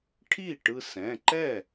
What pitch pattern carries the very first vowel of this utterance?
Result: falling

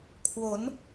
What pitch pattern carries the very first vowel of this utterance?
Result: rising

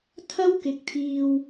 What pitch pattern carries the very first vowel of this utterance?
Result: high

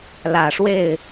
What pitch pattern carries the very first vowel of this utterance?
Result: low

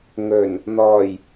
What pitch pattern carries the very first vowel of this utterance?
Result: low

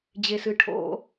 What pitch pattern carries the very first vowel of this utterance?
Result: high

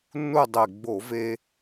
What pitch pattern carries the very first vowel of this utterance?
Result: falling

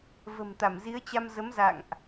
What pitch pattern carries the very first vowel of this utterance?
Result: low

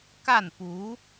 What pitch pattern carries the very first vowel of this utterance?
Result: falling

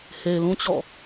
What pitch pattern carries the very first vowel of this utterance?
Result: low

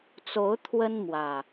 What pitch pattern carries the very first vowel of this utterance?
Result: rising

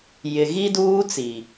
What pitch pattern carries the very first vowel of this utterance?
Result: low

